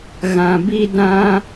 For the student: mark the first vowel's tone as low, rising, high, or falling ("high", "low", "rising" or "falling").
low